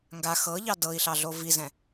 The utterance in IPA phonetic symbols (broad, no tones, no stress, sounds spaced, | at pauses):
ŋ ɡ a x ɤ ʎ ɑ d ɤ i̯ ɬ ɑ ɮ o v i z ɛ̃